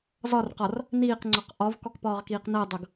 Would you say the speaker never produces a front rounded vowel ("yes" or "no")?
yes